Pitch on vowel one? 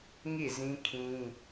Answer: falling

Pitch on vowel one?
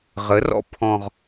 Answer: rising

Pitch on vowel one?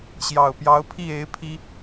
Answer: low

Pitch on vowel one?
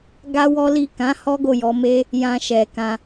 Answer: high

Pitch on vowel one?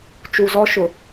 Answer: low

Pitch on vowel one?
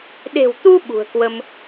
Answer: low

